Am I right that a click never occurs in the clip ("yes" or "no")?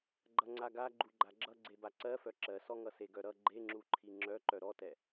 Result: no